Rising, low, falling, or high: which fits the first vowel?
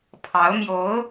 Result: rising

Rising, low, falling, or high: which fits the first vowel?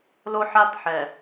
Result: high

